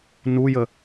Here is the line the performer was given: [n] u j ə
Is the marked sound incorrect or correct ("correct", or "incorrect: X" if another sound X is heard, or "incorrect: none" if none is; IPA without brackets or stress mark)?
correct